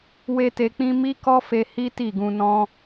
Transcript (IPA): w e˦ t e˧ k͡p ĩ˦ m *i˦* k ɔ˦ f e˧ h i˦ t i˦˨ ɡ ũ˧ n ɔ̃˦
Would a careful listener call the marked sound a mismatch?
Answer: no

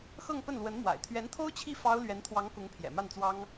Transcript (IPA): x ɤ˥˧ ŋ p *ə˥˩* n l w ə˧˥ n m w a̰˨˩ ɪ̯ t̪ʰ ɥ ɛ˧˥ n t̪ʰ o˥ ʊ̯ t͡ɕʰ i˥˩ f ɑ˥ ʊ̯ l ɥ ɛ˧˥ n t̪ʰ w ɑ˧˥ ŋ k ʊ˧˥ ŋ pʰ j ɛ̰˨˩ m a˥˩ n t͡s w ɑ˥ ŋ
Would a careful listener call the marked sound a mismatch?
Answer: no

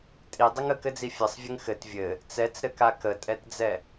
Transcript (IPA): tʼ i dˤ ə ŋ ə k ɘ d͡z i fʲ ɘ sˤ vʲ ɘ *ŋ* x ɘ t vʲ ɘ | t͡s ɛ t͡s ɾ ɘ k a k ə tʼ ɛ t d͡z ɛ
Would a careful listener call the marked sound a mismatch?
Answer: no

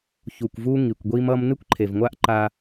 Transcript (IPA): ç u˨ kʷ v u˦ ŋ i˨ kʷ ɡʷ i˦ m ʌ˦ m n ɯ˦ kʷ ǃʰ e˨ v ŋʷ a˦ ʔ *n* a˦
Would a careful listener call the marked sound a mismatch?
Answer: yes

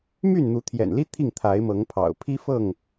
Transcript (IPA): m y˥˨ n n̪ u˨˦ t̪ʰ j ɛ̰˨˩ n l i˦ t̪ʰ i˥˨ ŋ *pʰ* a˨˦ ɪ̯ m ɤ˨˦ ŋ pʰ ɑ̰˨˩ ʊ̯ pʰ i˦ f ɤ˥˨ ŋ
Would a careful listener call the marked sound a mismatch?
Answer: yes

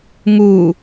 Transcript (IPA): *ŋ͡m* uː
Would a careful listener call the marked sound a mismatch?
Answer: yes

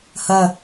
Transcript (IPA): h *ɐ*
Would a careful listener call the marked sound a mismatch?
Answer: no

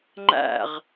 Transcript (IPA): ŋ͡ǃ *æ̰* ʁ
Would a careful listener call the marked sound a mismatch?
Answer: no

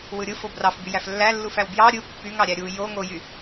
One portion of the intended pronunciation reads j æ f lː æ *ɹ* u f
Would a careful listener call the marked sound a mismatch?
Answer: yes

